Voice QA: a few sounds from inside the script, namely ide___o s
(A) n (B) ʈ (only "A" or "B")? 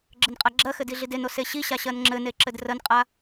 A